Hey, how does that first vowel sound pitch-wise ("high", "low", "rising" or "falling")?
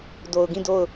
low